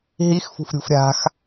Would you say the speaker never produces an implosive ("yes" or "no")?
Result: yes